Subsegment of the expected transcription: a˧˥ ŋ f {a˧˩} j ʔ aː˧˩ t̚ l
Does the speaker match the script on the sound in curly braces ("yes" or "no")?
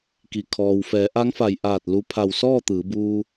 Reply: yes